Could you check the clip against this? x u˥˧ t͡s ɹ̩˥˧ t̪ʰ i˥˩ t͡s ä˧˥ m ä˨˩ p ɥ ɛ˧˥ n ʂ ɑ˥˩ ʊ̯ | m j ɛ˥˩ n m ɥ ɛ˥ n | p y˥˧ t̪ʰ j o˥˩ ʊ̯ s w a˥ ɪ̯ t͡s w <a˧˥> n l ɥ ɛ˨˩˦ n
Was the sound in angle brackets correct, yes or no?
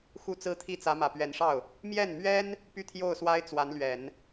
yes